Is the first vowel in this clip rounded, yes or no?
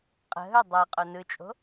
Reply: no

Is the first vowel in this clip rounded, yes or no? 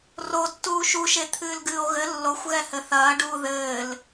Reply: yes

